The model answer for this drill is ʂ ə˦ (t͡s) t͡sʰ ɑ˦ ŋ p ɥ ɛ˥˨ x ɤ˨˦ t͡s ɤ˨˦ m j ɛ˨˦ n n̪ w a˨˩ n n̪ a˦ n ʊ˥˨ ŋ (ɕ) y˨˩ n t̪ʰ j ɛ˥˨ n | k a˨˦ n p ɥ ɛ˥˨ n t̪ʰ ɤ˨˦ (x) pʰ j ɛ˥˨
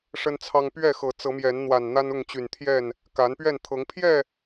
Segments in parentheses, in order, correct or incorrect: incorrect: n, incorrect: t͡ɕ, incorrect: ŋ

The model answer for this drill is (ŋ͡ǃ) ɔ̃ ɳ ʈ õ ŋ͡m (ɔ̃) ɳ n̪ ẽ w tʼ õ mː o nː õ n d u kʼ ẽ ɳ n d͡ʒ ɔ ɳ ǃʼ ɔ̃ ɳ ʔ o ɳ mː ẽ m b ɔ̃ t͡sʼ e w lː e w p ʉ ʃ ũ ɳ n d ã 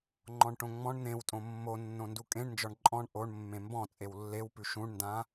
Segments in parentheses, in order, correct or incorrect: correct, correct

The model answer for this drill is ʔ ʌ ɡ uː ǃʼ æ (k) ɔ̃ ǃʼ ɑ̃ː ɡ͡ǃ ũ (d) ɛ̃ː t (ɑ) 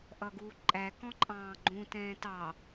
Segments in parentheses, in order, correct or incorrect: correct, incorrect: t, correct

